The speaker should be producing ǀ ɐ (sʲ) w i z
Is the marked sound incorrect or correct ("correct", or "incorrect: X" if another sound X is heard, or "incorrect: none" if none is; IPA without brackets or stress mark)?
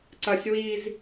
correct